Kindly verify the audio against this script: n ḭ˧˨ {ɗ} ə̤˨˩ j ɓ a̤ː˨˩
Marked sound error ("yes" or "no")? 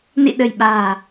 no